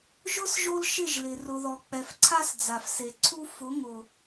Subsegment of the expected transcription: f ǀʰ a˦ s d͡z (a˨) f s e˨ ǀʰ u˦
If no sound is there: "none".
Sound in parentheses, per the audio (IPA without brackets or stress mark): a˨